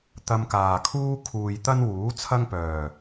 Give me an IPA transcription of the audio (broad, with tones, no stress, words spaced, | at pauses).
t̪ɐ˧mkaː˨kʰuː˥ kʰuː˨j t̪ɐ˥n wuː˨˥ t͡sʰɐ˥ŋpœː˨˩